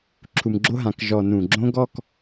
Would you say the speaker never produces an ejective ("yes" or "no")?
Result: yes